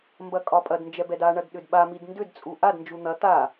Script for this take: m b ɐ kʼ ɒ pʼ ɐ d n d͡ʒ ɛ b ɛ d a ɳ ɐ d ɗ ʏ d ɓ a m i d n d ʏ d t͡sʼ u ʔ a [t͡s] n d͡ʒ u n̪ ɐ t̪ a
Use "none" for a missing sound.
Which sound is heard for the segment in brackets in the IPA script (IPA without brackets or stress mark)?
d